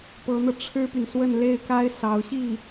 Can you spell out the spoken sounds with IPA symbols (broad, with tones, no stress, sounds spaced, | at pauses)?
p ɤ˧˥ n̪ ɤ˧ ʈ͡ʂʰ ɻ̩˥ p y˨ n s w ə˥˧ n l e˥˩ ɪ̯ k a˥ ɪ̯ s ɑ˧˥ ʊ̯ ɕ i˥˩